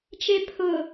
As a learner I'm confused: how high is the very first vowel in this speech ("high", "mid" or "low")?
mid